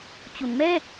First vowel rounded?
yes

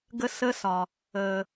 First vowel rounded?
no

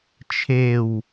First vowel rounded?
no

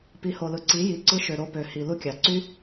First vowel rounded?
no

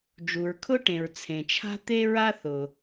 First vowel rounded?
yes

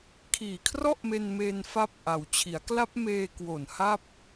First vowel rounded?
no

